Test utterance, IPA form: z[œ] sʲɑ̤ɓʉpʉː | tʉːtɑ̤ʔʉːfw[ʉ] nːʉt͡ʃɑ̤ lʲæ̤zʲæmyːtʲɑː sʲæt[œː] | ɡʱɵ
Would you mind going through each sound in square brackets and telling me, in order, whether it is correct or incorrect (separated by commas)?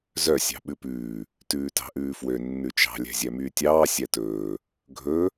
correct, incorrect, incorrect